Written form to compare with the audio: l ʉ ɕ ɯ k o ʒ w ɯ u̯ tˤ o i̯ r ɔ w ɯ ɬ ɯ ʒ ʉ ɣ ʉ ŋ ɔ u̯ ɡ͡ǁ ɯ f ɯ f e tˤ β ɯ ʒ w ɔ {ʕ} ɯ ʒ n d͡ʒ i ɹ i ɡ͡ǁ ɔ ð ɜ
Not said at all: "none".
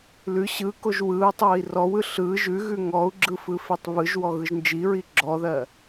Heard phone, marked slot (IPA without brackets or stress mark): ɣ